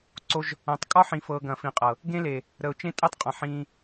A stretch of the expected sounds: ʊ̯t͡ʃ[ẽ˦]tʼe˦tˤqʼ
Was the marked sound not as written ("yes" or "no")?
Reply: no